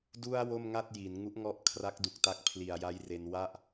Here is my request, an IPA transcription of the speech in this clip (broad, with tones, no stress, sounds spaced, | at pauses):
d u˧ a̯ w o˥˩ m ŋ a˥˩ t̚ j i˩˦ n ŋ u˦˥ ʔ ŋ ɔ˦˥ ʔ kʰ r a˦˥ k̚ d u˨˩ k̚ t a˦˥ k̚ pʰ l i˨˩ a̯ j a˦˥ j r e˧ n w a˥˩ ʔ